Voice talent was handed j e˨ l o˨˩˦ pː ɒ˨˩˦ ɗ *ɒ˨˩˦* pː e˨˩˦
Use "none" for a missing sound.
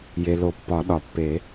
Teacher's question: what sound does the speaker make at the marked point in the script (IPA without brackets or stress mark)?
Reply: ɒ˨˩˦